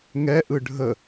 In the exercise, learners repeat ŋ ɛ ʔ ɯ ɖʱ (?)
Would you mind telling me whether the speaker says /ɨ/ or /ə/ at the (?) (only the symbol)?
ə